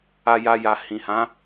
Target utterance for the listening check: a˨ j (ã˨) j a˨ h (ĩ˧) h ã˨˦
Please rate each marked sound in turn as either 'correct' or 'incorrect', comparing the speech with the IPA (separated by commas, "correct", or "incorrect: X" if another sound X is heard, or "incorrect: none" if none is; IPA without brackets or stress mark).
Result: incorrect: a˨, incorrect: ĩ˨